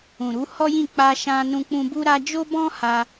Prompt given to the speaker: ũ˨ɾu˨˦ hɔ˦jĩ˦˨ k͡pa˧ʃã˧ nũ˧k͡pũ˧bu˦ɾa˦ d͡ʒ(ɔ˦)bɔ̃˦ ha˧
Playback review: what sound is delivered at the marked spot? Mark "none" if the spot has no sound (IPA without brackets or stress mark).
o˦